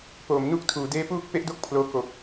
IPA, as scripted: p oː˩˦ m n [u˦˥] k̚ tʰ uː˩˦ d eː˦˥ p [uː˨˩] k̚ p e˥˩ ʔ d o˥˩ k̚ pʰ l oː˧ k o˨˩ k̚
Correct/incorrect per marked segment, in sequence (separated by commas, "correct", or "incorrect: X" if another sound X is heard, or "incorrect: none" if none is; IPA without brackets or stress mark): correct, incorrect: uː˥˩